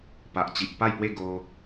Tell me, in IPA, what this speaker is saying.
p a˨ ʔ t͡ɕ i˨ ʔ p a˥˧ j p w e˥˧ ɡ o˧

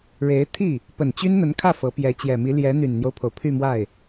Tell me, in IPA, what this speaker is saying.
ɻ e˧˥ ɪ̯ t̪ʰ i˥˩ | p ə˨˩ n t͡ɕ y˥ n n̪ ə˧˥ n kʰ ä˥˩ f ɤ˧˥ p j ɛ˧˥ t͡ɕ j ɛ˨˩ m i˧˥ l j ɛ˧˥ n̪ y˨˩ n n̪ j o˦ ʊ̯ pʰ o˩ ʊ̯ pʰ y˥˧ m w a˥˩ ɪ̯

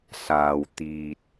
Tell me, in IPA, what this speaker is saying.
s aː˨ w t̪ iː˨ t̚

